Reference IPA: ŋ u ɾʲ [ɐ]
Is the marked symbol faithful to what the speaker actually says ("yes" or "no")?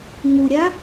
no